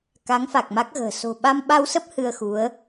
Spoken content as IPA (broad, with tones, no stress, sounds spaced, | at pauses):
k a˨˦ ŋ f a˨˩ k̚ m a˦˥ k̚ ɣ ə̤ː˨˩ s o̤˨˩ ɓ a˧ m ɓ a˧ w s ə˦˥ p̚ h ɨ˧ ə̯ x u˨˦ ə̯